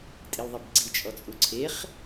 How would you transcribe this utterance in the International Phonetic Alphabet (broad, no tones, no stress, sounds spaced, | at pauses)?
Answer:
tʼ i l ðˤ e b ɡ͡ǀ i t͡ʃʼ ɔ t͡sʼ u ǀʰ e χ